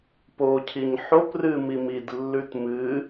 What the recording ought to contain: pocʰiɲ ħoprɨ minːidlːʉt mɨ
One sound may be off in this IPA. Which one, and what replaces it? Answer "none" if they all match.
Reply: nː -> m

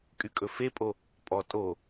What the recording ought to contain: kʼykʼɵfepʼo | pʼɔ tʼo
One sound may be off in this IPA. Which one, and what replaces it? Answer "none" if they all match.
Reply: none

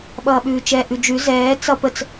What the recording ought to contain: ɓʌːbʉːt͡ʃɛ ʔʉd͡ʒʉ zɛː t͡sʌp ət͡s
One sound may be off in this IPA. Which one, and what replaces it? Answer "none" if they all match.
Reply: b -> ɓ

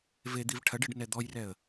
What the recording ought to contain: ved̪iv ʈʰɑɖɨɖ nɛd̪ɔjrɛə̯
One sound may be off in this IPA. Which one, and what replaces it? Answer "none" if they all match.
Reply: ɑ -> ɐ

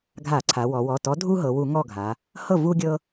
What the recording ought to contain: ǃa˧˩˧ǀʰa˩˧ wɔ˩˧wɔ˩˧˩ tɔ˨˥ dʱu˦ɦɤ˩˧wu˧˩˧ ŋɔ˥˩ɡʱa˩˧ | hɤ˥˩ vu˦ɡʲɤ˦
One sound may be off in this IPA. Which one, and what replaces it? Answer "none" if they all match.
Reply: ǃ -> ɡʱ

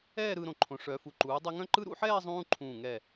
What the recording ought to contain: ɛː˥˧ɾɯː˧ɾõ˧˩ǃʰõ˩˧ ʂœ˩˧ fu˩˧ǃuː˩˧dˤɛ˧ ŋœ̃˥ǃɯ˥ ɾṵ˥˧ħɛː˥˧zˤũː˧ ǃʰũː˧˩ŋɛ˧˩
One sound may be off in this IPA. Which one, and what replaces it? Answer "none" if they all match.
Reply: none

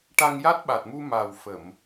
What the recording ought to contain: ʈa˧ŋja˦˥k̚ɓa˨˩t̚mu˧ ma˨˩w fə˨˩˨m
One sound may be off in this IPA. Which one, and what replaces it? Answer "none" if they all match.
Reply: k̚ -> t̚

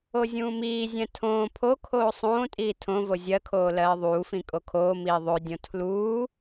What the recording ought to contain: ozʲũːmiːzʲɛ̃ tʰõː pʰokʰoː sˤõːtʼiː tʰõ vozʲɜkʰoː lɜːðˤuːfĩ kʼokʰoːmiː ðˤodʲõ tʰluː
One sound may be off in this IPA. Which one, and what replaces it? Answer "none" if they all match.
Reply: none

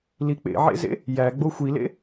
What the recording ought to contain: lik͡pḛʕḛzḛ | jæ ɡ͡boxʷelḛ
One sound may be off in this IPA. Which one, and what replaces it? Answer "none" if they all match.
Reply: e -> i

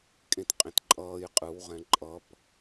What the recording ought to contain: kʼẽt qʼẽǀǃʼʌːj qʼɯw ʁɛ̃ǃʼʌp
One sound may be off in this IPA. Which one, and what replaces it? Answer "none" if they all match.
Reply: ǀ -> t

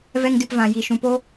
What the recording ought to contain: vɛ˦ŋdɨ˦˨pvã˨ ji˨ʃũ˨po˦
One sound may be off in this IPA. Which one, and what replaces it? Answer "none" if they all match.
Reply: none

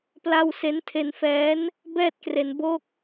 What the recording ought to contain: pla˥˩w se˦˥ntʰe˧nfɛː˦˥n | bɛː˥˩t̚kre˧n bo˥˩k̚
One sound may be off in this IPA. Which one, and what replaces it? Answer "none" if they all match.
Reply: none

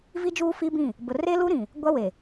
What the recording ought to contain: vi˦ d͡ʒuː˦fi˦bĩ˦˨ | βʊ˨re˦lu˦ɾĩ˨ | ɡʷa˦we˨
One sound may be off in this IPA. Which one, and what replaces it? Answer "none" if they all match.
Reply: β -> b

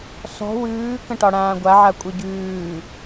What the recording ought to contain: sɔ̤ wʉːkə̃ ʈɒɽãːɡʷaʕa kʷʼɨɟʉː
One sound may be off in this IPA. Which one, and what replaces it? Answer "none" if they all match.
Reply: none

